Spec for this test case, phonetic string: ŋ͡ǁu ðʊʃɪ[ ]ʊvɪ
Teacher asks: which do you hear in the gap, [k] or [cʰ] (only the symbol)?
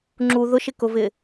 k